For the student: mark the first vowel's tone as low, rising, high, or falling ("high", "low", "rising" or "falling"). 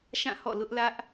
falling